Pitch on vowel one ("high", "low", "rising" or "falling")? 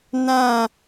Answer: falling